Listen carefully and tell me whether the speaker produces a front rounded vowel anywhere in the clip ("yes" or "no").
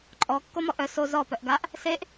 yes